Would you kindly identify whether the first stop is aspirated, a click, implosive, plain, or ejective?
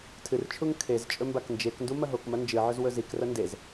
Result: aspirated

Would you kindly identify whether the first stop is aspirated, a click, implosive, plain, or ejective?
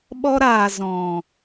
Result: implosive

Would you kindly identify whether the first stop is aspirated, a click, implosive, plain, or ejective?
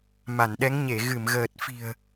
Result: implosive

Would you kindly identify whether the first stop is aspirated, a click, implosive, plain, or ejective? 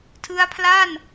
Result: aspirated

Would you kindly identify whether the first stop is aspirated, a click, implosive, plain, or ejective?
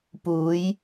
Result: plain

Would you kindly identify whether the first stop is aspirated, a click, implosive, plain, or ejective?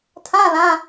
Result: aspirated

